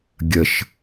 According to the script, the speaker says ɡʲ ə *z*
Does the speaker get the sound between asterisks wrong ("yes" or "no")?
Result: yes